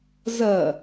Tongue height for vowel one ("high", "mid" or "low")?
low